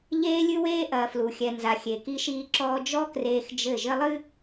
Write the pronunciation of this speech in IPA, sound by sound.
ʎeː˦lʲɨ˦weː˦ʔɐː˨ flu˨xʲɛ˨ nza˨xʲe˨ki˦ʃiː˦ ǁɔː˦ d͡ʒɔ˦kreː˨x d͡ʒɘ˦˨ ʒɘ˦lˠɨ˦

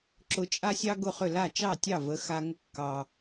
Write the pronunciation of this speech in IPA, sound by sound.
ǁʊ˧t͡ʃʼa˥sʲɑ˥ ɡʊ˥˩χʏ˥˩ la˥˩t͡ʃɑ˥˩tʲɑ˥˩ və˩˥xa˧ ŋʊ˧kːɑ˩

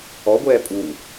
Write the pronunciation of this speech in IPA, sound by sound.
ɔɡʷɛː pʼu

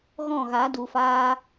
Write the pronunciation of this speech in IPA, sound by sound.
ɣɔ̃˦˨ɣa˨˦du˨faː˧

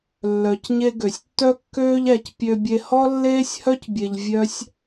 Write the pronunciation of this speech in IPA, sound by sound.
lːœ˩cɲe˧ ɡø˩sʲtːœ˥kːøː˥ʎæ˧c pʲø˧bʲe˧ hɔ˥lːeː˥sʲhœ˥cbʲe˧ʎ vʲœ˥sʲ

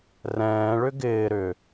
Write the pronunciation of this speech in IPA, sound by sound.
rɛ̃ːɭʏ ɡɪː ɾʏ

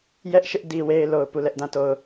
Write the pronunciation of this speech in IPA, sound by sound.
jɛ˦ʔʃɪ˦ʔ di˦ we˦ɪ̯lo˨ʊ̯ pu˦˨lɛ˦ʔdã˦˨ to˨ʊ̯

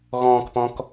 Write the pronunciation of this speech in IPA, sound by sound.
ɣɔ̃ːkpɔ̃k

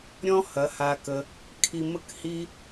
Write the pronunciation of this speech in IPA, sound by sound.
ɾʲɔ̃˦hɐ˨˦ha˧kə˧ | kʰi˧mə˦khi˦

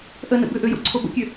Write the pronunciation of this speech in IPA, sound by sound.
ʔənə̰ bʏʔøjo̰ǀʰo bə̰kʲø

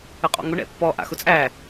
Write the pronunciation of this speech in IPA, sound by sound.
əqʼɔ̰ŋʊ ɳɛ̰pːɔ ʔa̰xʊt͡sʼæ

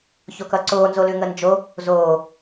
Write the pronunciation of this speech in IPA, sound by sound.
çokʌǀoːnzo lʉŋənd͡ʒo | zoː

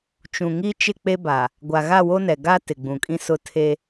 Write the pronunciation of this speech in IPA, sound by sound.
t͡ʃũ˨ŋi˦ t͡ʃɪ˦˨k͡pe˦ba˨ | ɡʷa˨ɣa˦˨wo˦nɛ˨ ɡa˦ tɪ˨ɡ͡bũ˨kʼĩ˦ sʊ˦ tʰe˦

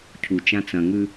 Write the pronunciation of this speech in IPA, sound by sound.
cʰut͡ʃã t͡sɐ̃ŋʉ

